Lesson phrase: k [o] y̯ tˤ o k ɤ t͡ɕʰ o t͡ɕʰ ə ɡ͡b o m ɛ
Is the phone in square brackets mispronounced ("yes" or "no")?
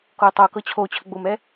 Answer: no